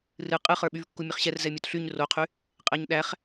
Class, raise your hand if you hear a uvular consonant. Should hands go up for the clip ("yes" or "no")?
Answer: yes